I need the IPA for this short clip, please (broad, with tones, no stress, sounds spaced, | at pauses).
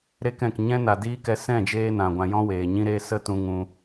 ɾ e˧ k ɛ̃˨ k ɲ ɛ̃˦ n a˨ d iː˦ k ɛ˧ s ɛ̃˦˨ d͡ʒ eː˧ n ã˨ ɡʷ ã˧ j ɔ̃˦ w eː˨ ɲ ĩ˧ ɾ e˧ s ə˦ t ũ˧ ŋ ũ˧